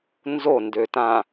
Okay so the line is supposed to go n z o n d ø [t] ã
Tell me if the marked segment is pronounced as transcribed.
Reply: yes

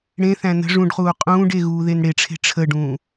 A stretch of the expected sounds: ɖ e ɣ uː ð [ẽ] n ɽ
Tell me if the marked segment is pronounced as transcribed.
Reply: no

